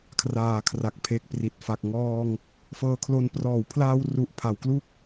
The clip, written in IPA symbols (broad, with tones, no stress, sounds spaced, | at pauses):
kʰ r aː˨˩ kʰ r a˨˩ k̚ pʰ e˨˩ k̚ p r i˨˩ t̚ f a˨˩ k̚ ŋ ɔː˧ ŋ | f ɤː˧ kʰ l o˧ n p r ɔː˩˦ w pʰ l aː˧ w r u˨˩ ʔ pʰ a˩˦ w k l u˥˩ k̚